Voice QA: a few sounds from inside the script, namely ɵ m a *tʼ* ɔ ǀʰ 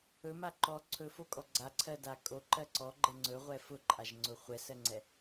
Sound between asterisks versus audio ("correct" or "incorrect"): incorrect